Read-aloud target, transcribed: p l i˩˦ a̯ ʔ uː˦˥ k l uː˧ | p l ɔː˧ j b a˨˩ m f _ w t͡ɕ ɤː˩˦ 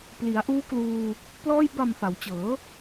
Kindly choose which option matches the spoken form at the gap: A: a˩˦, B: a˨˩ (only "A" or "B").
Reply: A